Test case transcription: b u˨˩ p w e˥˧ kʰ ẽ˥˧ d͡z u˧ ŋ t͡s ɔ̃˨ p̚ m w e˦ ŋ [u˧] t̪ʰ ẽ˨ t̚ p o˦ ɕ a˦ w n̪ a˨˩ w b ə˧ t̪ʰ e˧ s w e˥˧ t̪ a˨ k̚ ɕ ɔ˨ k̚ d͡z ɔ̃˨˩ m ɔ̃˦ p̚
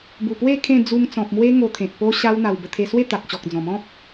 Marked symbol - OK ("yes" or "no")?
no